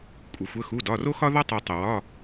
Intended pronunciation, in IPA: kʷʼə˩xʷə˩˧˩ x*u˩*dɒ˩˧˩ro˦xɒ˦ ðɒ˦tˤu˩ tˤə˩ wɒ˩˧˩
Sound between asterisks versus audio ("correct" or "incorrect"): incorrect